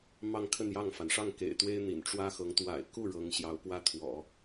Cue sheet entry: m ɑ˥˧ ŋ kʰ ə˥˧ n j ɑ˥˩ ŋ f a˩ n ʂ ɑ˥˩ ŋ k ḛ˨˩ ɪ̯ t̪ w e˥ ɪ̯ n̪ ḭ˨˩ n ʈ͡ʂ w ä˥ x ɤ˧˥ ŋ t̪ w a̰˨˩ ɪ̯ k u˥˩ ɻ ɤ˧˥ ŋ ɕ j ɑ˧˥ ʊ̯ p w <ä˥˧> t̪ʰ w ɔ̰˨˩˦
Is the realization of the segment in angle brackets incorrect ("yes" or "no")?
yes